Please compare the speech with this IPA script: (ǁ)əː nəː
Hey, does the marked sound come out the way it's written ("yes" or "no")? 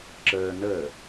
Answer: yes